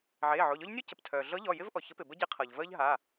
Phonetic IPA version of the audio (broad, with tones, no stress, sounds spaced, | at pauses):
ʕ eː˩˧˩ ʕ o˩˧˩ ʎ ɔ˥ ʎ nʲ u˥ c ə˩ p tʰ œː˩ ɮ ɤ˧˥ ʎ ɔ˩˧˩ j ɪ˥ v ʔ ɔ˩ ç ə˧˥ p ɪ˩ b ə˥ ɟ e˧˥ qʰ ɤ˩ ʎ v əː˥ ʎ ɦ a˩˧˩